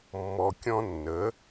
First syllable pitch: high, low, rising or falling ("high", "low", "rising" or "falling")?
low